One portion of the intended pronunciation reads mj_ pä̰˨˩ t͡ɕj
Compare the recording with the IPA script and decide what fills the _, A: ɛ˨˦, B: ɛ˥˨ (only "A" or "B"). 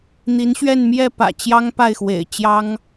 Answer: B